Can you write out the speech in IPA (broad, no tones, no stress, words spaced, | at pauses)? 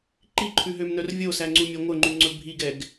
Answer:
ǃiǃʰʉɦømnœr vʲosæŋ͡ǀumʲɛ ŋʷœŋ͡ǃʉŋ͡ǀɵ bʱiɡɛɡ